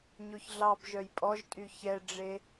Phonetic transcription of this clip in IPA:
ɲoçɮɑbʒœj pʼɔʒtʼy çɛɖ͡ʐe

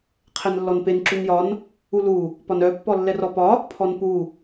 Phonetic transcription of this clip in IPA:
qʰɛnlːɔnpen ǁunjɒn | ulu | pɒnœ pːɔlːɛrɔpɒ | pʰɔnpu

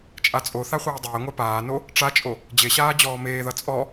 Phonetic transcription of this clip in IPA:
t͡ʃʼat͡sʼoθa χʷeːdˤeːŋʷa paːno | ʈ͡ʂat͡ʃʼo | d͡ʑeɕaː d͡ʑɔːmeːðʌ t͡sʼɔ

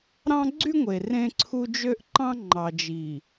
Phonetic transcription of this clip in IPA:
ɾɑ̃˦ɡ͡ǀy˦ŋʷe˨ rẽ˦ǀʰu˦ d͡ʒø˦ʔǃɑ̃˦ ŋ͡ǃɑ˨d͡ʒi˨

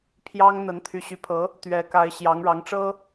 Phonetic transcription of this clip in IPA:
pʰjɑ˥ŋ n̪ə˧˥nt̪ʰy˧˥ ɕy˧˥pʰɤ˧˥ | t̪ɥɛ˧˥ka˧˥ɪ̯ ɕjɑ˧˥ŋɻɑ˧˥ŋʈ͡ʂɤ˥

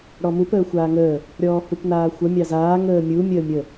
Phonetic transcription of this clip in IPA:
ɽɔmup əːxʷaːŋəː | ɾʲɔːhupnaːxʷə mʲɑzaː ŋəːmʲu mʲəːmʲə

